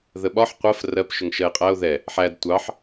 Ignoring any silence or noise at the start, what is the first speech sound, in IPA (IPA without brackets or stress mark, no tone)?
ð